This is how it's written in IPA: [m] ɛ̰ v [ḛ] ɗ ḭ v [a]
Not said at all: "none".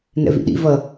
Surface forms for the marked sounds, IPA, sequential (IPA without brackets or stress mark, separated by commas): n, ḭ, ʌ